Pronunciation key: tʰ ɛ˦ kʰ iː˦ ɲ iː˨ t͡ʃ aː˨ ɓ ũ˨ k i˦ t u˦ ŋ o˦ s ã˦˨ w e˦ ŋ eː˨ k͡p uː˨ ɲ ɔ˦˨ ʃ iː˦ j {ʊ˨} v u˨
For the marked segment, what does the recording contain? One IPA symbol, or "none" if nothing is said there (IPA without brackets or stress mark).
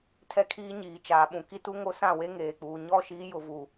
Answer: ʊ˨